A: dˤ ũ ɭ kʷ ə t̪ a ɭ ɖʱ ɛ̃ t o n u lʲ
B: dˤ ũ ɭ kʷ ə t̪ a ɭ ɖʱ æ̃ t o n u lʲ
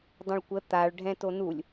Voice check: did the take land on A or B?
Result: A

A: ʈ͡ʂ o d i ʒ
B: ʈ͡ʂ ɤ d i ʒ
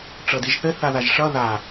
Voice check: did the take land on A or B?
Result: B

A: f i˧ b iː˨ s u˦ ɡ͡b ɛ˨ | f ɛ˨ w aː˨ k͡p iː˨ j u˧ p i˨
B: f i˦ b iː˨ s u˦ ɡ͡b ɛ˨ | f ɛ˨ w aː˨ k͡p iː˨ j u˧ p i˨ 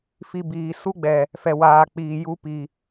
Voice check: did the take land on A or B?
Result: A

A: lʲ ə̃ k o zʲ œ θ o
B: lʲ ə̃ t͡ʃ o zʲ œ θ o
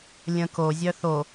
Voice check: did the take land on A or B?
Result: A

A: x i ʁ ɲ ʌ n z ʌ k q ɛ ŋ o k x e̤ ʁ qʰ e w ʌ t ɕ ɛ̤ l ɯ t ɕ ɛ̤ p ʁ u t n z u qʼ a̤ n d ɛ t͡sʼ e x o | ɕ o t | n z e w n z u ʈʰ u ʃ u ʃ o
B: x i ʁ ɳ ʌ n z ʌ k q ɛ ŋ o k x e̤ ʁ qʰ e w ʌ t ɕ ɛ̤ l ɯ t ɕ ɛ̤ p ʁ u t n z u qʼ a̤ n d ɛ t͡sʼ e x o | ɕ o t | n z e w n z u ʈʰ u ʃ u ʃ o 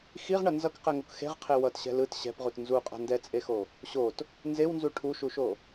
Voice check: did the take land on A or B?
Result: B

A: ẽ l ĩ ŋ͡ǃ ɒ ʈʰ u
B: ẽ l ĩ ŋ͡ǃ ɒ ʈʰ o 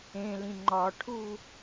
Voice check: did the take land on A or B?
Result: A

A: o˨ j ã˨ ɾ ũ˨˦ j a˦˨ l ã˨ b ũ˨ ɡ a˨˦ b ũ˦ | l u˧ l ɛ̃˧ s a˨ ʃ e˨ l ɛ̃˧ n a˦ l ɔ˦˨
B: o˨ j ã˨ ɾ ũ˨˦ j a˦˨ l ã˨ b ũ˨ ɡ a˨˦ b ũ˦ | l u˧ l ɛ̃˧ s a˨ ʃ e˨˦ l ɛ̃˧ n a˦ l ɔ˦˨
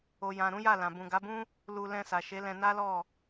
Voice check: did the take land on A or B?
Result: B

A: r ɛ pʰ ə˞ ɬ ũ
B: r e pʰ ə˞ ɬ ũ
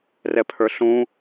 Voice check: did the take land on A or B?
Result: A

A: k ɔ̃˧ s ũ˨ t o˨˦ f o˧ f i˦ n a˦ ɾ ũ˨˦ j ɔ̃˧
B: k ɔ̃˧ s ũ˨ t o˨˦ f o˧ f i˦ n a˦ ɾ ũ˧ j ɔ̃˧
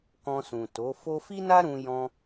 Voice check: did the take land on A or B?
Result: B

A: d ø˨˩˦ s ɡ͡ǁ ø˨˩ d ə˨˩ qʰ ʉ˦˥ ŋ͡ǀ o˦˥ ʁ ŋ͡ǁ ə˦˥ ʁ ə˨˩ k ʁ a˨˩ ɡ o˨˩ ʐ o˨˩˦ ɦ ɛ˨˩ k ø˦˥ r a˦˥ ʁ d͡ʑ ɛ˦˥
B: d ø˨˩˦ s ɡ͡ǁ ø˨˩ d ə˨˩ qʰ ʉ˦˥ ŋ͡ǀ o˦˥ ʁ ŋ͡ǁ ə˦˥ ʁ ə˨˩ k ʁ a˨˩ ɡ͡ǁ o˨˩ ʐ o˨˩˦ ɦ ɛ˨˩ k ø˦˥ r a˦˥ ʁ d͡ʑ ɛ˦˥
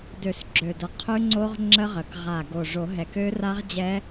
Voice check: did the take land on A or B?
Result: A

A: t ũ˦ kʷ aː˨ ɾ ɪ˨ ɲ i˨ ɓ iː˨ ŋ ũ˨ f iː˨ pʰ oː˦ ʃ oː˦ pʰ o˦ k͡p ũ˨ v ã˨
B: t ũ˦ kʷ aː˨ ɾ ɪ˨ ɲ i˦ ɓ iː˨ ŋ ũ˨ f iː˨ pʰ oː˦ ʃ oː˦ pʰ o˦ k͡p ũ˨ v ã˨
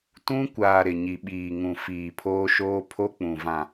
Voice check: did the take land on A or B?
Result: A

